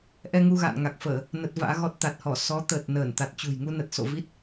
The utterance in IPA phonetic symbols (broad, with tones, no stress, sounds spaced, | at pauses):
ʔ ɛ˧ ŋ u˧ ɣ a̰ː˧˨ n ŋ a˨˩ k̚ f əː˧˩˨ | n ə˦˥ t̚ v a̰ː˧˥ ɣ ɔ˦˥ t̚ t̪ a˨˩ t̚ h ɔ˧˩ s ɔ˨˦ t̪ əː˨˩ t̚ n əː˧˩ n t̪ a˨˩ t̚ t͡ɕ ṳ˨˩ j ŋ u˧ n ə˨˩ t̚ s o̰˧˨ v i˦˥ t̚